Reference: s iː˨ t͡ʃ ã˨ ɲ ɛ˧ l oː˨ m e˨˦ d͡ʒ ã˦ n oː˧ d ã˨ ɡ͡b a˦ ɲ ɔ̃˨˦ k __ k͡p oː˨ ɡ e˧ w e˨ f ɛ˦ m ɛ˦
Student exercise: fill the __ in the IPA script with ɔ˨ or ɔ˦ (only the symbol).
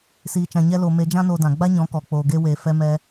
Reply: ɔ˨